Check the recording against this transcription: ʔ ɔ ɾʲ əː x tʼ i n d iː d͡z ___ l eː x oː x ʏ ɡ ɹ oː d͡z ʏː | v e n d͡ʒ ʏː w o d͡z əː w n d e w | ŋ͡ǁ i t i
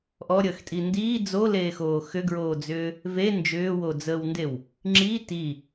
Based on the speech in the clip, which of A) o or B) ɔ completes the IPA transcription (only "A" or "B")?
A